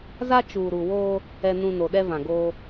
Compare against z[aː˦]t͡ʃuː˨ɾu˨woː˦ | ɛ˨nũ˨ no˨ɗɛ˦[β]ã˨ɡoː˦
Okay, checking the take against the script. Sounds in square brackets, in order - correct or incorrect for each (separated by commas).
incorrect, incorrect